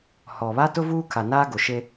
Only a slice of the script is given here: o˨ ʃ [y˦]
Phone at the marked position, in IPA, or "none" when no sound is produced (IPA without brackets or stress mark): e˦